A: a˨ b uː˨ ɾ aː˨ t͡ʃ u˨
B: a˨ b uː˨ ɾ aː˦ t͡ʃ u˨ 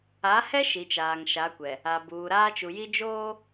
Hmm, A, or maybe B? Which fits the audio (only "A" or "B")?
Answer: B